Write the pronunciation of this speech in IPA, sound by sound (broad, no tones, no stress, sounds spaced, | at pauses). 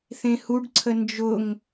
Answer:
θ ẽ h u ɖ ǀʰ ə n d͡ʒ ʊ ŋ